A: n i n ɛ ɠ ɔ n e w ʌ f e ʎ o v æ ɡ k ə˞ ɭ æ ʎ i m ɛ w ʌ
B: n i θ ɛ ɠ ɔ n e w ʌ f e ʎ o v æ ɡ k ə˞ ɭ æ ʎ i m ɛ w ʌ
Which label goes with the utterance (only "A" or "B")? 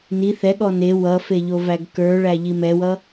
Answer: B